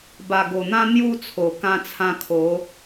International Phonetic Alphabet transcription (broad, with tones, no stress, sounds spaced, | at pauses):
b a˨˩ ɡ o˨˩ n̪ ã˦ n̪ j u˦ t͡sʰ o˨˩ k ã˧ t͡sʰ ã˧ kʰ o˨˦